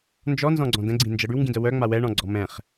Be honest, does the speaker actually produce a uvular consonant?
yes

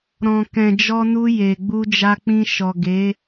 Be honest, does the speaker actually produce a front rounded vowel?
no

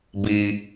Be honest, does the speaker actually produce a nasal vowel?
no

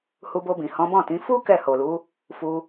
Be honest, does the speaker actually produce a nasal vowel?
yes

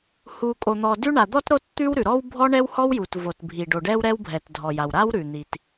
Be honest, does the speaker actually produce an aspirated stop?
no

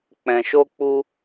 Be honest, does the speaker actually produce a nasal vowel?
yes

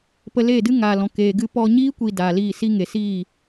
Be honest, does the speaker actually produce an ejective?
no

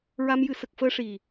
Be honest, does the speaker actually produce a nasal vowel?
no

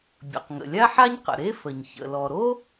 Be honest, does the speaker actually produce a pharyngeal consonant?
yes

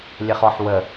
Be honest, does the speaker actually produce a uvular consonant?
yes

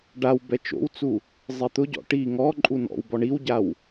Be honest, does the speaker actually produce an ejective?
yes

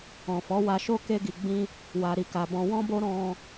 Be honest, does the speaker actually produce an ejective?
no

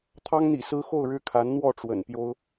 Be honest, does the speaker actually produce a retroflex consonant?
yes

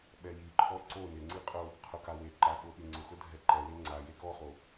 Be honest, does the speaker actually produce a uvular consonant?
yes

